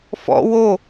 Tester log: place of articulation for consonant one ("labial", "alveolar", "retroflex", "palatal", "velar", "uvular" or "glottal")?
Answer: labial